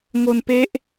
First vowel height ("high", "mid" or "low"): mid